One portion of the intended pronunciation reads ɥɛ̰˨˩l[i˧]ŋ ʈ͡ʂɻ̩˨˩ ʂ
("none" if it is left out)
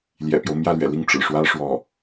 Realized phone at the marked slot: i˥˩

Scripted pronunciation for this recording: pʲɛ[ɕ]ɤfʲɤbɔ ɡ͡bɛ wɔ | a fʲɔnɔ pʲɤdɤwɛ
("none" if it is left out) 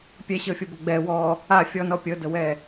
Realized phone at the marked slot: ɕ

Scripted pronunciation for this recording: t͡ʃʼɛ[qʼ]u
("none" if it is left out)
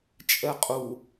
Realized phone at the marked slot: qʼ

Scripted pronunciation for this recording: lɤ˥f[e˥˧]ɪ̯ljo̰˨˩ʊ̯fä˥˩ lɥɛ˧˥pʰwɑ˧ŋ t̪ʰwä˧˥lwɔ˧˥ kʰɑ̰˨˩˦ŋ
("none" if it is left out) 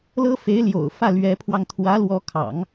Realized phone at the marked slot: e˧˥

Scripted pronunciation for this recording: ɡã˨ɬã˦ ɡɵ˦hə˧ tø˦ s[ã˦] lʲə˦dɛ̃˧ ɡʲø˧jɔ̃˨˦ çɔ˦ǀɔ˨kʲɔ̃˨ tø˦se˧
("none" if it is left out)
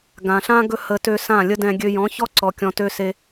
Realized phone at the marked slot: ã˦˨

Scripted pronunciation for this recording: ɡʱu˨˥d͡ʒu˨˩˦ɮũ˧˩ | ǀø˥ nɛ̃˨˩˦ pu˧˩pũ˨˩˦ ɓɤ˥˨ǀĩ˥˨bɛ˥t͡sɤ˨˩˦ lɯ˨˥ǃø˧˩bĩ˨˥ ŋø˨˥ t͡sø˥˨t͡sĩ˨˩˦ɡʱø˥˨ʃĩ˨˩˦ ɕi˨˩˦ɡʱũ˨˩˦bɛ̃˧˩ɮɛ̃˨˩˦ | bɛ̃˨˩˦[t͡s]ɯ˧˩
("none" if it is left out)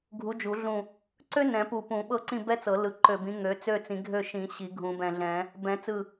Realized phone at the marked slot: t͡s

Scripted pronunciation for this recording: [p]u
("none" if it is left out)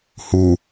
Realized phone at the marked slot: h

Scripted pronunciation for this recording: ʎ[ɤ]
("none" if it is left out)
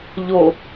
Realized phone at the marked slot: o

